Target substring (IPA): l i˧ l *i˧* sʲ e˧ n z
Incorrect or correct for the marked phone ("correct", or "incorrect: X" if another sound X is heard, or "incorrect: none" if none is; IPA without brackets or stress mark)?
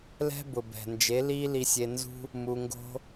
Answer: correct